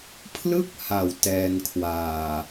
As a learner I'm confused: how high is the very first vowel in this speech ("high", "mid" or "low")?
high